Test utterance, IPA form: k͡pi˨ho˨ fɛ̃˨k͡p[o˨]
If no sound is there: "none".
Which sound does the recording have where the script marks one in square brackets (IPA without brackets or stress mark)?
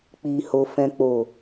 o˨